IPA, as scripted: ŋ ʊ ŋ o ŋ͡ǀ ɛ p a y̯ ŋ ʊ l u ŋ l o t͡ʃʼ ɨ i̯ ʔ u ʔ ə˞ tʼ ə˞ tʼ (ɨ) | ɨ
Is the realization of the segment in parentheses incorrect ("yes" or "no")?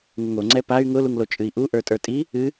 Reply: yes